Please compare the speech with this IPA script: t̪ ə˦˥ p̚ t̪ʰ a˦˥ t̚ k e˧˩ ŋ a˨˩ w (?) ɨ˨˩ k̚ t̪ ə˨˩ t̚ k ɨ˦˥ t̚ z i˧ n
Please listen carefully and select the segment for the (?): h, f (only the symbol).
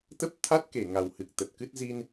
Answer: h